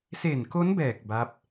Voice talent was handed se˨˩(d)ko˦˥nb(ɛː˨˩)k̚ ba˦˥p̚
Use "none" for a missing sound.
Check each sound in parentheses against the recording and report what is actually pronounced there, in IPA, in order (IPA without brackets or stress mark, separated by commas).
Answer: n, ɛː˨˩